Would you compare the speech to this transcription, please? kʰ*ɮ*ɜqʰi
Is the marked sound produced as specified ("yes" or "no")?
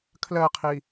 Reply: no